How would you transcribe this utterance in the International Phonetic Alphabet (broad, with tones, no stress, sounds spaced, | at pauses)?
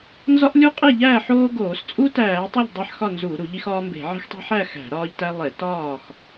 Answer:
n z ɒ˦ ʔ lʲ u˦ qʼ e˥˨ ʎ æː˥˨ ħ oː˦ ɡ oː˧˩˧ s t͡sʼ u˦ t æː˧˩˧ tˤ i˥˨ ʎ dˤ æ˥˨ ħ x ɒ˥˨ n z u˧˩˧ ɾ u˧˩˧ ʎ i˦ x ɒː˦ m b e̤˧˩˧ ʕ e̤˦ x tˤ e̤˦ ħ æ˥˨ x æ̤˧˩˧ ɾ ɒː˦ ʎ t æ˦ lˠ e˧˩˧ t ɒː˥˨ x